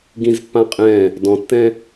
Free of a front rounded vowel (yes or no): yes